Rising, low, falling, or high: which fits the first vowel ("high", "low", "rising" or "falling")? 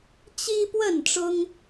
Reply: high